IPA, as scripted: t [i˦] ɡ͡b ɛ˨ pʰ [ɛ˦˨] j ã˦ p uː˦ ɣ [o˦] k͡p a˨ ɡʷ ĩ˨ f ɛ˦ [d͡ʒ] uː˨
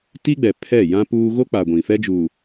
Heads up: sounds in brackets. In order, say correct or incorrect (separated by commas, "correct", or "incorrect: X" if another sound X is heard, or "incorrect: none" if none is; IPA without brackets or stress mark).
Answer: correct, correct, correct, correct